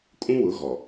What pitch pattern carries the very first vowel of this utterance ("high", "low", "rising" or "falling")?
high